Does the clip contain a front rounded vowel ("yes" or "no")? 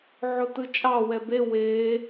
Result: no